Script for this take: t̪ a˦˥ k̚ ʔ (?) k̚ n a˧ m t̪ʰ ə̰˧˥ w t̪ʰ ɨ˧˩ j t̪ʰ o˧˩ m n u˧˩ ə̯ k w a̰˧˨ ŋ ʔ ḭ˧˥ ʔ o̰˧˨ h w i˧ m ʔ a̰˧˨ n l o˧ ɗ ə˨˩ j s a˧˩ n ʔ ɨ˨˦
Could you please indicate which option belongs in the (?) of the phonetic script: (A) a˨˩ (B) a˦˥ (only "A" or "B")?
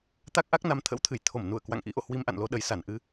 B